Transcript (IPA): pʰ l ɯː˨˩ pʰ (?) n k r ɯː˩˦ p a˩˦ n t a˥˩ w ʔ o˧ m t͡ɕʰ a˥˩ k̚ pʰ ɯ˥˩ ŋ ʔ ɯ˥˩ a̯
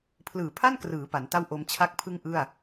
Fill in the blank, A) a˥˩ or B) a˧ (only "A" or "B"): A